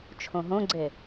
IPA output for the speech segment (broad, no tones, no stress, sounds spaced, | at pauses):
t͡ʃʰ õ ɦ õ ɡ͡ǀ e